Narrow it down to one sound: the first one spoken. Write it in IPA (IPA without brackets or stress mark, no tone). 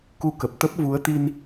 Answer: k